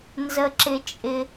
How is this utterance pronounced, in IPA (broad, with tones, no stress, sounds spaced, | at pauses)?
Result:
n z ə˧ ǁ ɪ˧ t͡ʃʼ ɪ˧